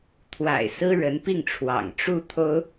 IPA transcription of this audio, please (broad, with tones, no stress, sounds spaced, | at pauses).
t̪ʰ w a̰˨˩ ɪ̯ s ɹ̩˥ ɻ ə˧˥ n p i˥˩ ŋ ʈ͡ʂʰ w ɑ̰˨˩ ŋ ʈ͡ʂ u˥˩ t̪ʰ o˥ ʊ̯